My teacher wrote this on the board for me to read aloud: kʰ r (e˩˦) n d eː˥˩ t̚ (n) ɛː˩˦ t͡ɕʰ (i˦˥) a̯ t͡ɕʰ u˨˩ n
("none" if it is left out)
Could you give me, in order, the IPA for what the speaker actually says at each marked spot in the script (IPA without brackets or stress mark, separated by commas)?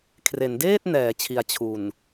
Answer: e˩˦, n, i˩˦